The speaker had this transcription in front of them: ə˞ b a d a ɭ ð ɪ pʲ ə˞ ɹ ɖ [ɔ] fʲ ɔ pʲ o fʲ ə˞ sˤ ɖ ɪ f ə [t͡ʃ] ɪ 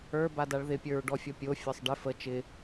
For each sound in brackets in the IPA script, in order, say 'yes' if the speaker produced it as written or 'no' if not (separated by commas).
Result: yes, yes